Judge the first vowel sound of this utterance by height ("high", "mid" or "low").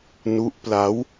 high